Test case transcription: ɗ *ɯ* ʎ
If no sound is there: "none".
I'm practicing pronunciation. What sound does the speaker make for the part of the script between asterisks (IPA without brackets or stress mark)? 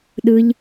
ɯ